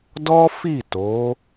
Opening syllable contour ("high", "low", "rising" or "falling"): high